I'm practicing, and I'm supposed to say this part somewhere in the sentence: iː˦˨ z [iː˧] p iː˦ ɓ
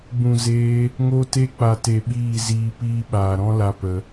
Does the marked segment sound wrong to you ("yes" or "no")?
no